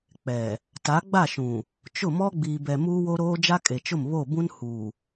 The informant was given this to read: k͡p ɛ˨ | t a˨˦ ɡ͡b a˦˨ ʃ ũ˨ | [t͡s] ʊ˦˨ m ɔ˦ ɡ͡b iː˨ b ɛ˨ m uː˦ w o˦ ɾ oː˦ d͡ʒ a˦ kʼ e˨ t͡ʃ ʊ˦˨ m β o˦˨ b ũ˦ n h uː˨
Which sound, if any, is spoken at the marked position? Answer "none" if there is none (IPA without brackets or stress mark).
t͡ʃ